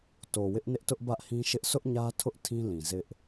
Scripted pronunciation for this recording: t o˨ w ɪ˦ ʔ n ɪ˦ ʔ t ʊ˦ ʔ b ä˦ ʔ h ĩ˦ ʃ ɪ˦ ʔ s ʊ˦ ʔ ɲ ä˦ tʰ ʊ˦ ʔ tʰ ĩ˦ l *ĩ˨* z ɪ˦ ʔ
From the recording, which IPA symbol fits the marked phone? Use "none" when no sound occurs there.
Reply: ĩ˨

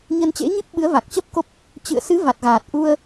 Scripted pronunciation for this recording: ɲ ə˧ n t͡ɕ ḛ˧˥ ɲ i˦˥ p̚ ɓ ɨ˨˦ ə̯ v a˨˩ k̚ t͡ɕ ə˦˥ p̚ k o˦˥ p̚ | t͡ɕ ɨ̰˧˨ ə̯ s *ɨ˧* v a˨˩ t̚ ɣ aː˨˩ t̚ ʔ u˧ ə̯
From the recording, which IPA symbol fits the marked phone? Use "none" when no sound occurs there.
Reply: ɨ˨˦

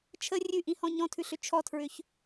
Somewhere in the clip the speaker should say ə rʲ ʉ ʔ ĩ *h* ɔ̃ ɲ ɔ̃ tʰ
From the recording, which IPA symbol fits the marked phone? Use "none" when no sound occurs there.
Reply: h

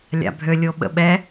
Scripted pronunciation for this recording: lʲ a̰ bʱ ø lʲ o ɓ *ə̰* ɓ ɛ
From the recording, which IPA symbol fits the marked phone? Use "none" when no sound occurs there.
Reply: ə̰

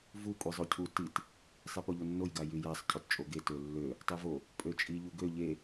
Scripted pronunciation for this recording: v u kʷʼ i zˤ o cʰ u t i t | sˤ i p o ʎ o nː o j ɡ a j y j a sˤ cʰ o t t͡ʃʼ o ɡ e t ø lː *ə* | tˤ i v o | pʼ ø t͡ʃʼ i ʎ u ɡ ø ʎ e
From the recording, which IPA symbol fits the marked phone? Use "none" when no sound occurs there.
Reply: ø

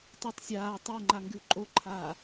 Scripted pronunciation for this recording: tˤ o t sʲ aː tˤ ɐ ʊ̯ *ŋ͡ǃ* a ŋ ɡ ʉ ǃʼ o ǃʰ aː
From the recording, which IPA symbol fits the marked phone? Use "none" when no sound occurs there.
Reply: ŋ͡ǃ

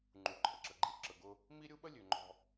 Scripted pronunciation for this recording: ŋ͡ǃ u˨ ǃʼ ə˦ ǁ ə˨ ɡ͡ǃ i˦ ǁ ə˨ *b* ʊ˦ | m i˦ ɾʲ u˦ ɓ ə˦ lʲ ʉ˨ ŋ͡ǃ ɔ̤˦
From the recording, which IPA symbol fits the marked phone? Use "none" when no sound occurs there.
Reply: ɡ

